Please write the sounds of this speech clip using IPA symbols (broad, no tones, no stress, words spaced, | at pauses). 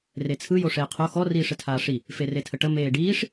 ret͡sʰɯ joʂeːqʰo xɔ riːʂɘtʰaːʂi | feretʰəʈə meːɖiːʂ